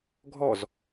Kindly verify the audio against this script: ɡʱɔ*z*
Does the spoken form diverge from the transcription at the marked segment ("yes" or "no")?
no